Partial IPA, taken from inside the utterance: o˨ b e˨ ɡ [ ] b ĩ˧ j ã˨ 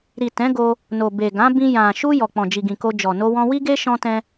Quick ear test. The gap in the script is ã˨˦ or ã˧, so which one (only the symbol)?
ã˨˦